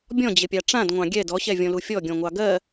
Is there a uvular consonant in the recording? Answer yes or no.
no